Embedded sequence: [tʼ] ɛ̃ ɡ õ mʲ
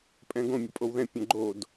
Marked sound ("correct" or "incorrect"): incorrect